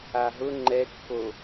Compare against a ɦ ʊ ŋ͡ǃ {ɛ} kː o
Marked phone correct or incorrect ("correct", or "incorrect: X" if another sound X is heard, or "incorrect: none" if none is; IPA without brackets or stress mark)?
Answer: correct